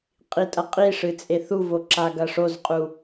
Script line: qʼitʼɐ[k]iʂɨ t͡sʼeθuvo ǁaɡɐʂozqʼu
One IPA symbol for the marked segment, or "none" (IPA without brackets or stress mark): qʼ